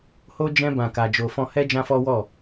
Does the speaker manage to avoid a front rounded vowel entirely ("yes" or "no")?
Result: yes